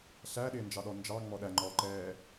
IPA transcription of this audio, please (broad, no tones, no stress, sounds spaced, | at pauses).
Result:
ɬ æ ɗ ɪː n d͡ʒ ɑ ɗ ɔ n d͡ʒ ɑ ŋ͡m ɔ ɗ æ ŋ͡ǃ ɔː ǃ ɛː